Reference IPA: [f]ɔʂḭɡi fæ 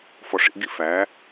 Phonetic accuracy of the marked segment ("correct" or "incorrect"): correct